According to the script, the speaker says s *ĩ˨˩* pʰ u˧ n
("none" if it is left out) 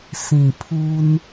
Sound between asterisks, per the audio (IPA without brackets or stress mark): ĩ˨˩